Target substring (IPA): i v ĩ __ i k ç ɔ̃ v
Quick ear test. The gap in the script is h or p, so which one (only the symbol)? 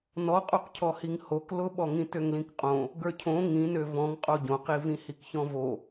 h